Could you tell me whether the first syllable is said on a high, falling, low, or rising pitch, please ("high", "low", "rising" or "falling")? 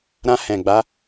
high